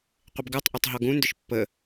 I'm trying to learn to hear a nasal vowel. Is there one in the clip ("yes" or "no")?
yes